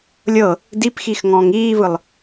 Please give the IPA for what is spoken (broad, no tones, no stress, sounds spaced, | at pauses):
lʲ ɤ | d i p x i x ŋ ɔ̃ː ŋ iː v ɯ lˠ